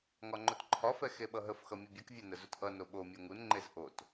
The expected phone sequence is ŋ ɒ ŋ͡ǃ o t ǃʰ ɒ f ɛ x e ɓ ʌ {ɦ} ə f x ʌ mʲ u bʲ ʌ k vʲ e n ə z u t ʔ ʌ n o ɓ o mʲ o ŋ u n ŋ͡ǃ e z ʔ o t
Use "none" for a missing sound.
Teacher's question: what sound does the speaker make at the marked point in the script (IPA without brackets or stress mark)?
ɦ